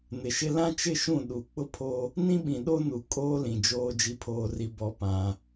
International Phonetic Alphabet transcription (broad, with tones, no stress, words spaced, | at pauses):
nɪ˨ʃɪ˦ lã˦t͡ʃɪ˦˨ʃũ˦˨ ɗu˨ k͡pʊ˦pʰo˦ | nĩ˦ɓĩ˨ɗo˦nu˨ kʼoː˦lĩ˨d͡ʒoː˦ d͡ʒi˦pʰoː˦ri˦ bɔ˦pã˦